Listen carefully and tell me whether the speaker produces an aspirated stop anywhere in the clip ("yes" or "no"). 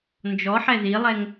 no